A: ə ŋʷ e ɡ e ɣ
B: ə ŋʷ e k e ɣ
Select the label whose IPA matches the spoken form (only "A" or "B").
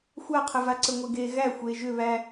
A